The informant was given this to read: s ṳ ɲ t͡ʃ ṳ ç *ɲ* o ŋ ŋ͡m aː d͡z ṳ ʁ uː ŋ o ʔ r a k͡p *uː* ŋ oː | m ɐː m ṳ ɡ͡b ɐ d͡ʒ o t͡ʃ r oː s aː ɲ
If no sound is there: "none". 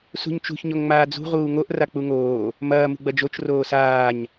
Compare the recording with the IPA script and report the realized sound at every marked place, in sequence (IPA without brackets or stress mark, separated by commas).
ɲ, u